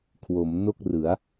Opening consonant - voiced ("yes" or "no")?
no